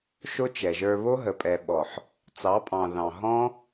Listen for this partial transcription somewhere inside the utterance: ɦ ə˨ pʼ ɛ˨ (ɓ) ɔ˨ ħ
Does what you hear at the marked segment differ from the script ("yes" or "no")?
no